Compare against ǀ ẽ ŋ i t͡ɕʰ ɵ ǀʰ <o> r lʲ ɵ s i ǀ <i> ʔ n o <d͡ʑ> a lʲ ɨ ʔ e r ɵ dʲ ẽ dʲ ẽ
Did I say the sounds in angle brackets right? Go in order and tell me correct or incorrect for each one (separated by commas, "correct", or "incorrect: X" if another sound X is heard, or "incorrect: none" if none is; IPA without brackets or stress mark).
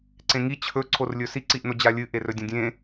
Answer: correct, correct, correct